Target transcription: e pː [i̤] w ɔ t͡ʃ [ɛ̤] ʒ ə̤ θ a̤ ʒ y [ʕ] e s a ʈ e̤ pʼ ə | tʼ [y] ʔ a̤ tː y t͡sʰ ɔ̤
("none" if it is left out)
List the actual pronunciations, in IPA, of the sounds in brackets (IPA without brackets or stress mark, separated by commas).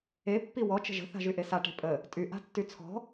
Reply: i, ə̤, ʔ, y